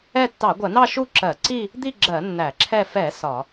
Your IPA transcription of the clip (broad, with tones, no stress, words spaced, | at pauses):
ɛ˥˧ tːɑ˧˩˧ɡʷɜ˧˩˧nɑ˥˧ ʃu˥˧ǁɜ˧˩˧ǀi˥˧ | d̪i˥˧ɡ͡ǁɜ˧˩˧ nːæ˧˩˧ǁʰɛ˥˧ fɛ˧˩˧ sɒ˧˩˧